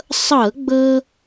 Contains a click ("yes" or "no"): no